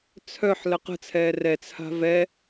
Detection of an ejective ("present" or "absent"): absent